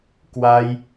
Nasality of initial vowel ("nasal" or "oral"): oral